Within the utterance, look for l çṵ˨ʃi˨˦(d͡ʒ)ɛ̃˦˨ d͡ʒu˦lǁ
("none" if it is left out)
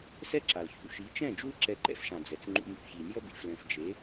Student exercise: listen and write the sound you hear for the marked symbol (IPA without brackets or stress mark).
t͡ʃ